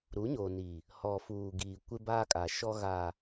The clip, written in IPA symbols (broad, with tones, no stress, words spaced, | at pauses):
ɾu˨˦ɲoː˨ni˨ | hɔ˨fuː˨ɡiː˨ kʷɪ˦baː˦kʼa˨ʃɔ˦ ɣa˨